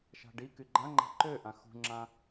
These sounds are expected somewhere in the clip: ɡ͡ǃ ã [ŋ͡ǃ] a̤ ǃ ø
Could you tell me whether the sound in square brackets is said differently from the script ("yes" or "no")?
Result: no